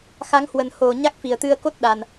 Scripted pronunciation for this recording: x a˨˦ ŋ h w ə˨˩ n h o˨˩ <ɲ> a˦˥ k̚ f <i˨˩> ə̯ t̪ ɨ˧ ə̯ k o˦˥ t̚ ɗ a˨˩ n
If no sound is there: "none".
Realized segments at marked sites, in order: ɲ, i˨˩

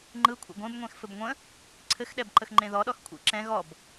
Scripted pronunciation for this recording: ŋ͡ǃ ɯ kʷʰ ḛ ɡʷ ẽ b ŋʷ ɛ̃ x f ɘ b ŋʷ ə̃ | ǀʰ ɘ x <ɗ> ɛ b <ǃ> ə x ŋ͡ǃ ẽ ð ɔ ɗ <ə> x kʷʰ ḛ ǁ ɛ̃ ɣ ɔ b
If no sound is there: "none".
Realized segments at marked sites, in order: ɗ, ǃ, ɔ

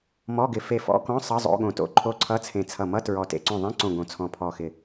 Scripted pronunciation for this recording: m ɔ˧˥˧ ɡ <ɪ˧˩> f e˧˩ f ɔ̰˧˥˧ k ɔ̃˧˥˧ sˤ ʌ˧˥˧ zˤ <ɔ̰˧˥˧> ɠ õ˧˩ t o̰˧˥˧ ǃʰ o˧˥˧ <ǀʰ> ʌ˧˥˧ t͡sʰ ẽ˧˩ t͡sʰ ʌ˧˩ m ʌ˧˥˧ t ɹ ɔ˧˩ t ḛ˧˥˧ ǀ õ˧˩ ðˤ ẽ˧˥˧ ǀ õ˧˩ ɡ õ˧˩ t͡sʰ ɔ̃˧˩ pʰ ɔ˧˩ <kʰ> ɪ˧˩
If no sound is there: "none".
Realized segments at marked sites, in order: ɪ˧˩, o̰˧˥˧, ǀʰ, x

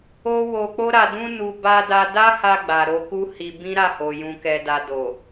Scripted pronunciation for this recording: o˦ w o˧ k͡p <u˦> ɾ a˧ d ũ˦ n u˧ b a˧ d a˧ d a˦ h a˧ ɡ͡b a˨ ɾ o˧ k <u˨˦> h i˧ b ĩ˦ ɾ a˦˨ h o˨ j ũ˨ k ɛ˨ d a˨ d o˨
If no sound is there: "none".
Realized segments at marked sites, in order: o˦, u˦

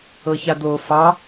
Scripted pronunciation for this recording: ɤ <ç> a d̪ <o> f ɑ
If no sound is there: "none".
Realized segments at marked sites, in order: ç, o

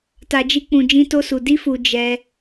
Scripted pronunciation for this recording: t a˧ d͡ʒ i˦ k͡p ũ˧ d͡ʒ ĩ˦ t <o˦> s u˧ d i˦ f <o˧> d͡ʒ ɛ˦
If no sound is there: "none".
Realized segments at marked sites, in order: o˦, u˧

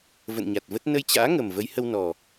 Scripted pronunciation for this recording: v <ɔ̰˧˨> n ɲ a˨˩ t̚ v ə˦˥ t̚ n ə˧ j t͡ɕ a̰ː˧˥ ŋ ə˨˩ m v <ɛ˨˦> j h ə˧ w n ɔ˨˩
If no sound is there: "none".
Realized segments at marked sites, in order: ə̰˧˨, ə˨˦

